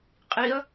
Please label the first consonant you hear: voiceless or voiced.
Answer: voiceless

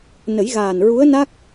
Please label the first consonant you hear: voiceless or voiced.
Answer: voiced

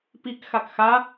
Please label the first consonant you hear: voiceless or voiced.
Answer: voiceless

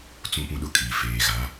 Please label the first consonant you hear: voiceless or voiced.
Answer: voiceless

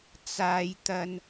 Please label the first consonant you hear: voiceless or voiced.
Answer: voiceless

